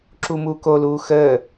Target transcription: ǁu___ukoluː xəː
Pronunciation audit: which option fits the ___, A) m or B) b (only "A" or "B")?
A